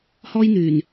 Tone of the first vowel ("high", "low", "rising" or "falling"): high